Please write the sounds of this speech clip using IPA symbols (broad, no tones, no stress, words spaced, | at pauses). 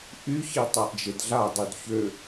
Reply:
ʔyçi tˤaʔd͡ʒedɮa dˤydçø